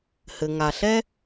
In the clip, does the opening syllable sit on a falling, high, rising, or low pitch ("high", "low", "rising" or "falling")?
low